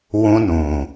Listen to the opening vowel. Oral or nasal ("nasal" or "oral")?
nasal